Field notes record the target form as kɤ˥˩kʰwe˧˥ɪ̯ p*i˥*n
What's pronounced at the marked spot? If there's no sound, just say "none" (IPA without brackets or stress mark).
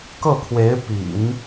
ḭ˨˩˦